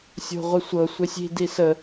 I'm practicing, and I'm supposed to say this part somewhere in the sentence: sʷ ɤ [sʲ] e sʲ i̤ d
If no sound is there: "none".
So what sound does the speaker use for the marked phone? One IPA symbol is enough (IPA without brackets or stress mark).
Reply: sʷ